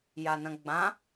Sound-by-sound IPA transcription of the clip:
janɐ̃ɡ͡bã

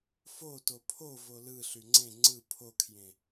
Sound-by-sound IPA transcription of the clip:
fo topʰo volɯ ɬyŋ͡ǀẽ ŋ͡ǀɯ pʰokʰjẽ

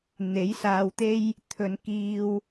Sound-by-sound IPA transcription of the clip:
n̪e˨˥jsaː˧wt̪e˥j | t̪ʰɵ˨˧nkiː˧w

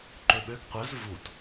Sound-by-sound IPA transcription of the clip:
ǃøɓøɡ qʷœz vut

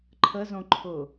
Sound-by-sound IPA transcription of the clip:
ǃʰəzõǃʰʊ

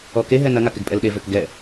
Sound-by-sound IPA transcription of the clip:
ɔkeɦɛ nɐŋak ɪɡpʼɛlɗevøk ɡɛ

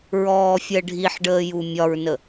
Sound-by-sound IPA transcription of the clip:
ɹɔːfʲɜɖʱiħɖəː jumʲɒɹnə

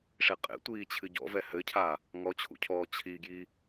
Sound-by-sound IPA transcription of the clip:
ʂeqʼḛtʷiː t͡ɕʰɨɟɔ̰vɛ hɘcʰa | ŋɔt͡ɕʰṵcʰɔː t͡ɕʰiɡji

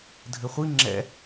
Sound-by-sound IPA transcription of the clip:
dʱɘχʷi ŋ͡ǁɛ̰

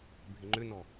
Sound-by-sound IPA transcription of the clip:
bʱɪŋ͡ǃʏnɔ

